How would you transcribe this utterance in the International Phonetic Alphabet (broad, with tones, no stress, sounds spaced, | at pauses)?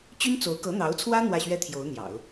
t͡ɕ y˥ n t͡s o˧˥ ʊ̯ k ɤ˧˥ n̪ ɑ˧˥ ʊ̯ t͡sʰ w ä˥ n̪ w ä˥˩ ɕ ɥ ɛ˥ t̪ʰ j o˧˥ ʊ̯ n̪ j ɑ̰˨˩˦ ʊ̯